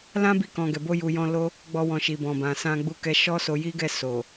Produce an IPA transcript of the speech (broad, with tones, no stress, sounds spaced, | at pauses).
l ã˦ b i˧ k ɔ̃˨ ɡ ɛ˨ b o˧ j u˨ j ɔ̃˧ l o˦ | ɡ͡b ɔ˧ w ɔ̃˨ ʃ i˨ b ɔ̃˨ b ã˨ s ã˧ ɡ͡b u˧ k ɛ˧ ʃ ɔ˦ s o˧ j i˦ ɡ ɛ˦˨ s o˨